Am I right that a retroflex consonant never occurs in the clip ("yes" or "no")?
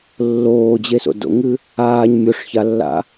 no